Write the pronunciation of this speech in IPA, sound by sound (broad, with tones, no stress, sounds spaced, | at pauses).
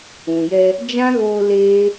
ũ˨ j ɛ˧ | d͡ʒ ã˦ ɣ oː˧ l eː˦